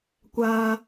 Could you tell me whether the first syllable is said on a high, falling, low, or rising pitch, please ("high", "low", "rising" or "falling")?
low